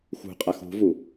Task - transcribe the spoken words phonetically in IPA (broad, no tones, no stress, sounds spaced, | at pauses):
x ṳ qʼ a x ṳ v u